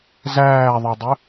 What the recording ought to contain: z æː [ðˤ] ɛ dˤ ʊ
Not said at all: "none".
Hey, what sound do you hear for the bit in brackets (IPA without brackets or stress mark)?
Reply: ðˤ